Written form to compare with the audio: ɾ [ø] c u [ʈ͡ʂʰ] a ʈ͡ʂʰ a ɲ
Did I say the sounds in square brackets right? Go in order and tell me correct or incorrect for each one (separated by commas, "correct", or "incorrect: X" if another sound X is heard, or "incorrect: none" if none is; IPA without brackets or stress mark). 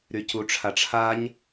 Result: incorrect: y, correct